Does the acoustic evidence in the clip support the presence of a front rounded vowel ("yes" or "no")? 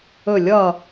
no